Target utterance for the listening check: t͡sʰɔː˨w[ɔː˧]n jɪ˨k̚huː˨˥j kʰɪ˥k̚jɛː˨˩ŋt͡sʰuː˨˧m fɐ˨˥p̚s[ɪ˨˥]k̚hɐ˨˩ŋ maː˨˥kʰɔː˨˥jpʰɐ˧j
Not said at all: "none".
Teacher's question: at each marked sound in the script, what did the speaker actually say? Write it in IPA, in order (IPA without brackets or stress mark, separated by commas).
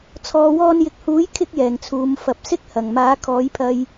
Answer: ɔː˧, ɪ˥